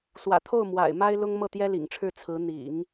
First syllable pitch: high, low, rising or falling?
low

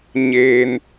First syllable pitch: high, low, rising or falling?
high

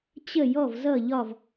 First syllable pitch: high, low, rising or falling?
falling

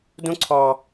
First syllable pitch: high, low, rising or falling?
high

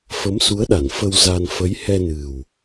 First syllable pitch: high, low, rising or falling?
rising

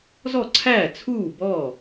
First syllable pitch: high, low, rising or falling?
falling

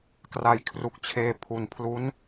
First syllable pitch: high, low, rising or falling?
low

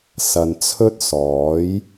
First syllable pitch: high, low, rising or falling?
low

